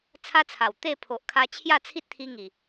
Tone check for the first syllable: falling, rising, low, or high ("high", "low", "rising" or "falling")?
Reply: high